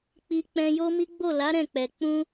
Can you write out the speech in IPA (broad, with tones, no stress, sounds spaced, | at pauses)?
k͡p i˧ k͡p ɛ̃˧ j o˦ m i˦ ɡ͡b o˦˨ l a˨˦ ɾ ɛ̃˦˨ k͡p ɛ˨ k͡p ũ˧